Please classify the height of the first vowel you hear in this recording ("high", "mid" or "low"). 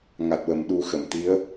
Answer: low